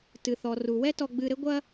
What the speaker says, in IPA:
t ɨ˩ θ ɔ˩ r u˩ w ɛ˥ t ɔ˧ ɡ͡b ɨ˧ ɾ ɘ˥ ɡʷ ɐ˥

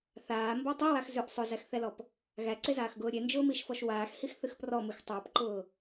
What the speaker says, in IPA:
θ aː m b ɔ tˤ i w a x z ʏ ʔ sˤ ʊ z æ x θ ɛ l ɔ p | ɣ æ ǀ e z aː x ɡ ʊː ɾʲ e n d͡ʒ ʊː m i ʃ f ɔ ʃ w aː x h i x θ ɨ x p r ɔ m ɨ x tˤ a p ǃ ʊː

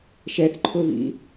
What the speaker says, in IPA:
ʃ ɛ θ ǃʰ ʊ β ḭ

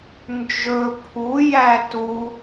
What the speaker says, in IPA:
n d͡ʒ ɵ pʰ u j æ t u

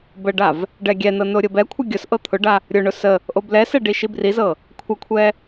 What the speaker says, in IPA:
b ə ɖ a v | ɖ ɛ ɡʲ ɛ n ɤ n o ɾʲ ɤ b ɛ kʷʰ ə ɡʲ ʊ s ʔ ɤ t̪ʰ ʊ ɖ a | ɾʲ ʊ ɳ ʊ s ə | ʔ o b l ɛ s ɛ ɖ i ʃ i b r i z ɤ | kʷʰ ə kʷʰ ɛ

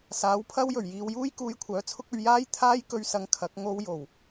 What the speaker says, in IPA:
s aː˨˥ w pʰ ɐ˥ w j ɵ˨˩ ɥ j iː˧ w j uː˥ j k uː˧ j kʷʰ œː˨˥ t͡sʰ ʊ˥ k̚ ɵ˧ ɥ j aː˥ j t̪ʰ aː˥ j k ɵ˧ ɥ s ɐ˨˧ ŋ kʰ ɐ˨˥ k̚ ŋ o˧ w j o˨˩ w

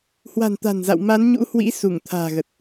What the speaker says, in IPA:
h w a̤˨˩ n t̪ a̤˨˩ n z a̰˧˨ w m a˨˦ n ɲ ṵ˧˥ h w ḭ˧˥ s u˧˩ ŋ t̪ʰ a̤ː˨˩ ɣ ə˨˩ t̚

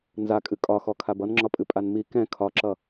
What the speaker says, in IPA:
n z a kʼ ɨ kʼ ɒ x ɔ kʰ a b ʌ n ŋ͡ǁ ɒ pʼ ɨ pʼ a n m i k ɛ̃ kʰ ɒ ǁ ʌ

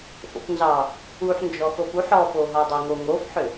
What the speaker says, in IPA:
f o̰ p n z ɑ | u ħ n d͡ʒ ɔ x o p u ħ ɔ p o ɦ ɔ dˤ ʏ ŋ o ŋ o f ħ ʏ

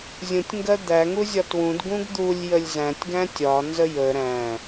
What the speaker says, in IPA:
zʲ ũ tʲ ŋ ɡ ɜ d̪ æ ŋ u zʲ ɒ t w ũ d ɡ ũ ɡ d̪ u lʲ j ə lʲ z æ̃ tʲ ɡ æ̃ tʲ ɒ n z ə j ə ɾ æ̃

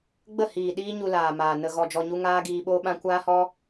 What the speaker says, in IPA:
ɡ͡b ə˦˨ h iː˨ ɗ iː˦ ɲ u˧ l aː˨ m aː˨ n ə˧ ɣ ɔ˧ d͡ʒ ɔ˧ ɲ u˦ ŋ aː˦ ɡ iː˧ ɓ oː˦ ɓ ã˦ kʷ aː˦ h ɔ˦

